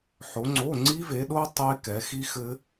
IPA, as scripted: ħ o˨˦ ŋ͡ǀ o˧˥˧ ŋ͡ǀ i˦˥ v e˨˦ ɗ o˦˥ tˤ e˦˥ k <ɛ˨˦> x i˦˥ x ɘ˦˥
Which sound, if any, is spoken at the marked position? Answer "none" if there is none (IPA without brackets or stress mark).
ɛ˨˦